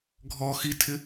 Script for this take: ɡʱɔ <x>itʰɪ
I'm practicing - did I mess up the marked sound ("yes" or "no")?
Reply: no